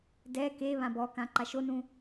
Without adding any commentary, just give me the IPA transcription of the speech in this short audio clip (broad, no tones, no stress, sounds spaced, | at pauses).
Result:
d ɛ k e β ã b ɔ k ã ǃ a ʃ o n ũ